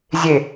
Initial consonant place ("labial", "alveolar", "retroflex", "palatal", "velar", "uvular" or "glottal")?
alveolar